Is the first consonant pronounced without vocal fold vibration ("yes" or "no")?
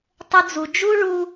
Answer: yes